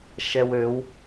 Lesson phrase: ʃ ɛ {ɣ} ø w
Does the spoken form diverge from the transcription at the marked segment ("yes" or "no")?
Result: yes